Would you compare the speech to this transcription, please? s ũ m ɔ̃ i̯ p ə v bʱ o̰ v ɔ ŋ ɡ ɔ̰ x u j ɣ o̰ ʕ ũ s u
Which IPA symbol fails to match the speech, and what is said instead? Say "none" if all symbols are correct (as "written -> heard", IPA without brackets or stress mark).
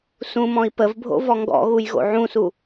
x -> ɣ